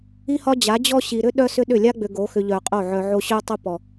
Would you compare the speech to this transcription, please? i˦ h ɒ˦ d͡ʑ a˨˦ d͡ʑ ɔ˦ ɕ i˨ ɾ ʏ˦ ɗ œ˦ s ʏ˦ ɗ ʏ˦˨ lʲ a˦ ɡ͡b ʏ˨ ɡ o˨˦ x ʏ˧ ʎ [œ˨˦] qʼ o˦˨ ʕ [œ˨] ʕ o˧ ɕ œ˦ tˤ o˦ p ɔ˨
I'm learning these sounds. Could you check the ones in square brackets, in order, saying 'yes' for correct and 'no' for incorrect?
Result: no, yes

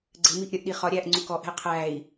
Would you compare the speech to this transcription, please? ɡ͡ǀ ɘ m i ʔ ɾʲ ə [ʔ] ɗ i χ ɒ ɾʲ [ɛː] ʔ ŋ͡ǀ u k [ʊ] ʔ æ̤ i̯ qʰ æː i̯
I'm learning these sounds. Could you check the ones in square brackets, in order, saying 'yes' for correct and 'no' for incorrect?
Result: yes, no, no

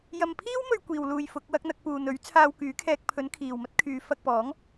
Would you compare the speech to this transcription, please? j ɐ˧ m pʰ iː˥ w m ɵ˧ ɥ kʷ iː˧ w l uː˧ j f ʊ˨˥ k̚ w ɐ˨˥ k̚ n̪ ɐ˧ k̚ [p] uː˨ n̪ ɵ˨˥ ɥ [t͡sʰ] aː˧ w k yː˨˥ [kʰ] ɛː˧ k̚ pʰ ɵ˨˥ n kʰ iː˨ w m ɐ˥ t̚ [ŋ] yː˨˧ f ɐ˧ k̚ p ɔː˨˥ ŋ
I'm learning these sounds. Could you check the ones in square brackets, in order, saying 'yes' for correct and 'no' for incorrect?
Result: yes, yes, yes, no

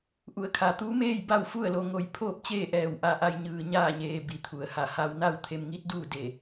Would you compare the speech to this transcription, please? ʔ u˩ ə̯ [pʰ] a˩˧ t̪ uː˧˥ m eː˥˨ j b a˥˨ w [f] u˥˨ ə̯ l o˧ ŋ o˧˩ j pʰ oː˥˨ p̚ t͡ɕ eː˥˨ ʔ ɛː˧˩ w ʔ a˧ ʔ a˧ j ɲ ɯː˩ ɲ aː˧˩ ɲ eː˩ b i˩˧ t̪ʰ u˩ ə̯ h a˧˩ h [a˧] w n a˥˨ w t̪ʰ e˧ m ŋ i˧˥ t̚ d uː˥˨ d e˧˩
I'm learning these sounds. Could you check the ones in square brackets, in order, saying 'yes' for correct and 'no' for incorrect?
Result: no, yes, yes

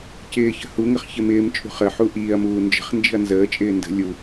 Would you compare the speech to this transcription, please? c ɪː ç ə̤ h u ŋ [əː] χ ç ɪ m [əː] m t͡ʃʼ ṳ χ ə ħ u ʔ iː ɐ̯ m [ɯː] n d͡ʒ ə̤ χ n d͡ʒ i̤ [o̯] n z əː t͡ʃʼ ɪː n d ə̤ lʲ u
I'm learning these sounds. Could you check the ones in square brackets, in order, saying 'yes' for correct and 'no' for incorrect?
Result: no, no, no, no

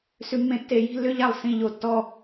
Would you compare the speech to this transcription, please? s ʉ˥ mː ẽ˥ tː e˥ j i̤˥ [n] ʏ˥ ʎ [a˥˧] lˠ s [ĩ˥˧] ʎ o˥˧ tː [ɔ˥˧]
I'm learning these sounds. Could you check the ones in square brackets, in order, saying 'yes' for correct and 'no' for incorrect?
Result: no, yes, yes, yes

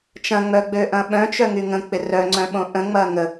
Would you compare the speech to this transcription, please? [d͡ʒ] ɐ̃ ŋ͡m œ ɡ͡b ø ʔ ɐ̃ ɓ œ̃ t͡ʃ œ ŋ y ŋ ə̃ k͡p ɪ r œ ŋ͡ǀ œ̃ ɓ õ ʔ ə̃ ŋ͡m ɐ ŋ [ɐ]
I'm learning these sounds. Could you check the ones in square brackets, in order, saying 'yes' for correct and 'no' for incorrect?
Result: no, no

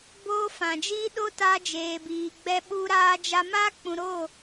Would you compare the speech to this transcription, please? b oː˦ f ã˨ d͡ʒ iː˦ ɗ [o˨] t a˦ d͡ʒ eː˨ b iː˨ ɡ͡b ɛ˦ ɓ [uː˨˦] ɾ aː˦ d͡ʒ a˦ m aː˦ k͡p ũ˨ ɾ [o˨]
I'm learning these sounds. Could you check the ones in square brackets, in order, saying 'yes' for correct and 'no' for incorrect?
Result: no, no, no

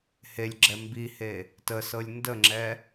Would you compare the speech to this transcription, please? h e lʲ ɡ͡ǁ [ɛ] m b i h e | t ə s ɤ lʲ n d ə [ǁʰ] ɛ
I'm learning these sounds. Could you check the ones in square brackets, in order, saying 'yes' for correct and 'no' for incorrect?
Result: yes, no

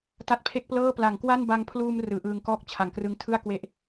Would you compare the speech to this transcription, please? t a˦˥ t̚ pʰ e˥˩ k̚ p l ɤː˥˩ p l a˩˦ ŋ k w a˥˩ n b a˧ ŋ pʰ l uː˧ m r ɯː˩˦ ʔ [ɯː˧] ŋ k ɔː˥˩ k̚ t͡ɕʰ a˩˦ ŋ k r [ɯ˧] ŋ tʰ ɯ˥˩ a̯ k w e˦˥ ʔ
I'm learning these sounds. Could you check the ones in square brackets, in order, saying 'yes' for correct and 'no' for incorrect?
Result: yes, yes

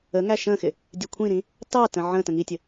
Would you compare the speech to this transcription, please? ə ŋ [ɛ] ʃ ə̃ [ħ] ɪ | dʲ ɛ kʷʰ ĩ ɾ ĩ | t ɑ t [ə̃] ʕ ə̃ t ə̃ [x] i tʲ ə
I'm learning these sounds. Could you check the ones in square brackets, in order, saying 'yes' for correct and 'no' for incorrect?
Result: no, no, yes, no

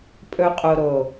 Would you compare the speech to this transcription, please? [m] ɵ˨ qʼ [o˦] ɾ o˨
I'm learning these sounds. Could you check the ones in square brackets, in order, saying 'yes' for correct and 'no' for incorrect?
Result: no, no

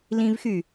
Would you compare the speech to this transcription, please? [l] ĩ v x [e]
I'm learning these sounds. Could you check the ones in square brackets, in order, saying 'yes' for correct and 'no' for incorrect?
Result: yes, no

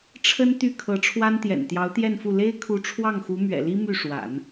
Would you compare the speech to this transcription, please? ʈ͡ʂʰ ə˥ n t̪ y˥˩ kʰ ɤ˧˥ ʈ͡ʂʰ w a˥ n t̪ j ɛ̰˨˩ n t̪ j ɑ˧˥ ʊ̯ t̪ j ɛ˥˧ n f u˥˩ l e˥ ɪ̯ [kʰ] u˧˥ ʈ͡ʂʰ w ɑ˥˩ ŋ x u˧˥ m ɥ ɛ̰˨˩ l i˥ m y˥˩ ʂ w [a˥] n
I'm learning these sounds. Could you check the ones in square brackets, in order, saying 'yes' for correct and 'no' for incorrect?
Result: yes, no

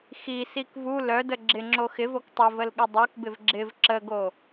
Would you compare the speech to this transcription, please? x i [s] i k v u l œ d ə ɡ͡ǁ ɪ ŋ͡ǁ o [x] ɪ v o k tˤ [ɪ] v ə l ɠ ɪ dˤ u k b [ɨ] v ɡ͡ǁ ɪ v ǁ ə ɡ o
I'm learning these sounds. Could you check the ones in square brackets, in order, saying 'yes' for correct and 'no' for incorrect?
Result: yes, yes, yes, no

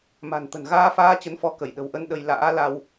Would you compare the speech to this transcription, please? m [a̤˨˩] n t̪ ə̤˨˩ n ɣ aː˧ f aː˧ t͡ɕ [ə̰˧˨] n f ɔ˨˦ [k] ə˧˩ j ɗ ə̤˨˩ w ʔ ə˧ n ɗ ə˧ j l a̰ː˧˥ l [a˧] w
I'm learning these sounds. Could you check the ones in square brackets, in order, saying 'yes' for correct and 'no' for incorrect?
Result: yes, no, yes, yes

